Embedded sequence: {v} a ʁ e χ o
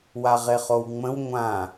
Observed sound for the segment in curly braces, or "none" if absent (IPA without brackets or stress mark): w